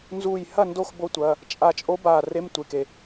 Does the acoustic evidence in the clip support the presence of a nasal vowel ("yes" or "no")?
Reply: no